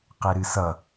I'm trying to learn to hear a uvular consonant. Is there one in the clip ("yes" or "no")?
yes